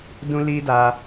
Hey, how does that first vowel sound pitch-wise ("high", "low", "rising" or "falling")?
high